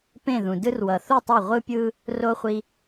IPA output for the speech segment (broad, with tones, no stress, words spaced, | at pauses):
pẽ˥˨ðũ˨dɯ˥r wʌ˨θu˥˨ tˤo˥˨ ʁʷɯ˥pʲɯ˥ | ro˥χʷi˥